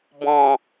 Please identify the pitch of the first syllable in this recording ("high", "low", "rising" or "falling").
low